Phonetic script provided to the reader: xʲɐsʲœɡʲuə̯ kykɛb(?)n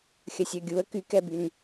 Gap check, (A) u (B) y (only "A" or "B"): B